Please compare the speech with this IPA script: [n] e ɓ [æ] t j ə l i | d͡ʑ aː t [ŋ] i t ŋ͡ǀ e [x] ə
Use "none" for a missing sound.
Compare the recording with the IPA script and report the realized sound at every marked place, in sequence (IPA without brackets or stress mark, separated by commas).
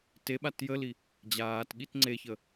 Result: t, a, ɠ, ç